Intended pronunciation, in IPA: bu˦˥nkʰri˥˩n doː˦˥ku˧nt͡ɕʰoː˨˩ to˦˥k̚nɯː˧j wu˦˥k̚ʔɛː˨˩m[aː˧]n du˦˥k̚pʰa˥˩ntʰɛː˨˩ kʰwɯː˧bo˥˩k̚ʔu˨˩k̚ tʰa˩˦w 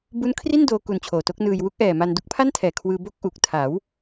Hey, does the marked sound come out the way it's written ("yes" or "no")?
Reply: no